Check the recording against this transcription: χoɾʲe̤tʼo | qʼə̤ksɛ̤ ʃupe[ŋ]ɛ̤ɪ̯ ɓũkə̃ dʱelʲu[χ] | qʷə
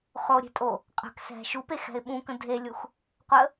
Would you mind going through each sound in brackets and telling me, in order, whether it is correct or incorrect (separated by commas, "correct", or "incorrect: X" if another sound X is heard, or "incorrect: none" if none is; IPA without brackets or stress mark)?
incorrect: x, incorrect: x